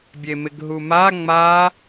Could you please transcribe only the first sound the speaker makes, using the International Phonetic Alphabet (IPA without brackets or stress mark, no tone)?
bʲ